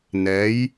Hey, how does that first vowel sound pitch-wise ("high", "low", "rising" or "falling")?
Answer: rising